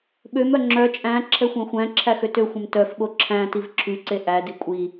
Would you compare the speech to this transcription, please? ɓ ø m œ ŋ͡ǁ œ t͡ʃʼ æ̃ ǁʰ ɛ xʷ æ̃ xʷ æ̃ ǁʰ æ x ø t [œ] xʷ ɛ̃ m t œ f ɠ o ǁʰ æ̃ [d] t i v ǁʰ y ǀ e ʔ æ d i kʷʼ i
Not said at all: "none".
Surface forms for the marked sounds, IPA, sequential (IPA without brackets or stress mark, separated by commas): ø, none